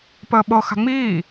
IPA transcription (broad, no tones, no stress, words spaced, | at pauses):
pəːɓɤxa̤ ŋ͡miː